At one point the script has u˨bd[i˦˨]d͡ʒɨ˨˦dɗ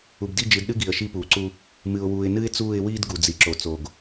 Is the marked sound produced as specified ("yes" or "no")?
yes